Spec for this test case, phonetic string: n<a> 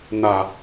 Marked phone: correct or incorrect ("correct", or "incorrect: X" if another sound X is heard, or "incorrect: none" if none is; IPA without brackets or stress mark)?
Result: correct